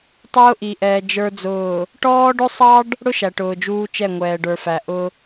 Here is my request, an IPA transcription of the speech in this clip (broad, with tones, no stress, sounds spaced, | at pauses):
tˤ ʊː˦ ʔ i˨ ʔ ɛː˨ d͡ʒ ə˞˨ d͡z ʊː˨ | ʈ ɔː˦ ɖ ʊ˦ sˤ ɑ˦ ɖ | ɽ ʊ˦ ʃ æ˨ ʈ ʊː˨ d͡ʒ uː˦ t͡ʃ ɛ˦˨ ŋʷ ɛː˨ ɖ ə˞˨ f æ˨ ʔ ʊ˦